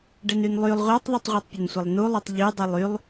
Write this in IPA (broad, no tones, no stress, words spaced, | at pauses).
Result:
ɖɛnynlˠylˠ ʁʷatˤðˤytˤʁʷatˤpʲən sʷəlˠnulˠytˤ ʎydˤilˠ ylˠ